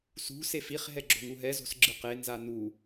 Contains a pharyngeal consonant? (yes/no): no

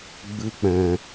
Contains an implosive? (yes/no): no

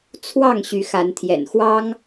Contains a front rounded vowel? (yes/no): yes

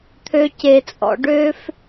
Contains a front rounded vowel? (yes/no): yes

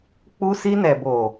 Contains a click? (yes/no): no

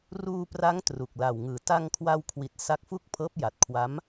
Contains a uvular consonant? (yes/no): no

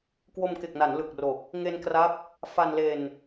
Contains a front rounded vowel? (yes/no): no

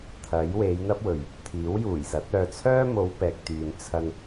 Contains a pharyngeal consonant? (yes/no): no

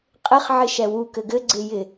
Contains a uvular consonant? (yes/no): yes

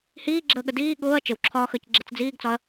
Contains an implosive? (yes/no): yes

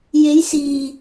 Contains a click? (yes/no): no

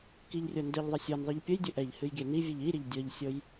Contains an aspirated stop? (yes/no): no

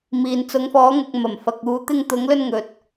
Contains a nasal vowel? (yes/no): no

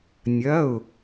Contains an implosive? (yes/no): no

